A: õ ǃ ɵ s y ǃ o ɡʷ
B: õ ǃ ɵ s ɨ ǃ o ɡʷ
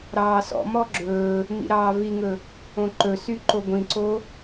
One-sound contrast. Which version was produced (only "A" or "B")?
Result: A